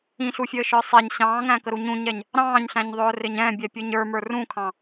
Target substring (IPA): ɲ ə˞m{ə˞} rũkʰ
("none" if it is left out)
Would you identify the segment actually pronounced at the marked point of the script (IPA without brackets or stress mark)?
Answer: ə˞